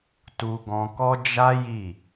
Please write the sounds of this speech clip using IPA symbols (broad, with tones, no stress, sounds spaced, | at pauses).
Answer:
t u˧ ɡ ɔ̃˧ k ɔ˦ d͡ʒ a˦ j i˦˨